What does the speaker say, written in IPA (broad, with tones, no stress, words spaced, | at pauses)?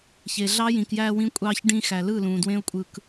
çe˨ ɮɑ˦ jĩ˨kjæː˧wĩ˧kʷʼɑː˧ç ɖĩ˧xæ˨lɯ˦˨lũː˨ dwẽ˦ʊ̯kʷʼɯ˧k